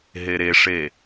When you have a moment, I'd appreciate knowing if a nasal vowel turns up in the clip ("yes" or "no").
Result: no